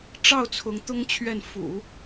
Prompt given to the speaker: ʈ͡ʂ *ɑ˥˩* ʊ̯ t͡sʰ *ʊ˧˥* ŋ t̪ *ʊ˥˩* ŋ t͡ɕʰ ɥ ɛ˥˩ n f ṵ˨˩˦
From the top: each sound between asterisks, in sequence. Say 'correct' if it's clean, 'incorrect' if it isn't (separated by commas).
correct, correct, incorrect